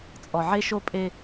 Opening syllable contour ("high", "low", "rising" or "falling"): low